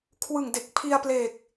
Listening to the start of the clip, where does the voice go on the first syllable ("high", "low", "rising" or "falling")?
low